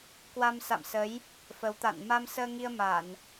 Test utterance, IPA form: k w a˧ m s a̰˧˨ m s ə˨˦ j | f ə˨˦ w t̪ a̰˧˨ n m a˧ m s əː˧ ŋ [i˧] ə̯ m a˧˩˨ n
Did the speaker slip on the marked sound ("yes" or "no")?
no